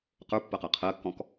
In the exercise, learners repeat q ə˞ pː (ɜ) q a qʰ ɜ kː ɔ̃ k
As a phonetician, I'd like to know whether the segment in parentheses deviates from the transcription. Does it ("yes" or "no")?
no